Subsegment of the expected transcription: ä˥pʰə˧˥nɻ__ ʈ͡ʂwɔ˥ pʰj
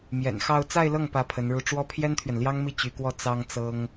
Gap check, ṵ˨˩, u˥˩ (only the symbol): u˥˩